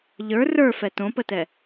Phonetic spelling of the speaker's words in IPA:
ʎ ə˞ r ə˞ f ɛ t õ p ə t ɛ

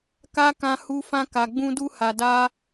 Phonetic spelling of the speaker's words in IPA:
k a˦ k ã˧ h u˧ f ã˧ k a˨ ɡ͡b ũ˧ d u˧ h a˨ d a˧

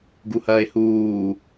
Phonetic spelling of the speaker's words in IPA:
ɡ u h ɐː e̯ h uː

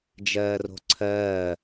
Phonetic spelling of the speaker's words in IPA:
d͡ʒ ɜː r o̤ ǀʰ ɜː

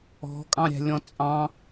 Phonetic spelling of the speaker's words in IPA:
ɔ̤ kʼ ɑ̃ ɾʲ æ̤ lʲ ɔ̃ t͡sʼ ɑ̃

